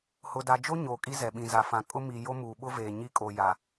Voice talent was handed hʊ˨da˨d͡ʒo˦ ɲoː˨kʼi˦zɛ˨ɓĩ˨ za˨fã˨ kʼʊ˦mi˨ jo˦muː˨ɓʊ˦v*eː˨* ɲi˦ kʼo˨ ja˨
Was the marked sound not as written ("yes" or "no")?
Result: no